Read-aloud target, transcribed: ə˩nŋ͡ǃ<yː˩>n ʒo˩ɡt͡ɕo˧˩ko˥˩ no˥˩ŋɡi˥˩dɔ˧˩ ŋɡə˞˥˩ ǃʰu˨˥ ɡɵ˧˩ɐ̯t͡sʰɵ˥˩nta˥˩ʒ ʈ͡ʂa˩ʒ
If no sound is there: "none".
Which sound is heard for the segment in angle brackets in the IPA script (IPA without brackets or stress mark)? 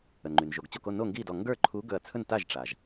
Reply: y˩